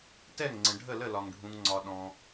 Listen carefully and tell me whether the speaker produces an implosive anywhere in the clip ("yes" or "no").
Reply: yes